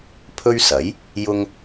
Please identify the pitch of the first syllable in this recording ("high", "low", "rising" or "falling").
high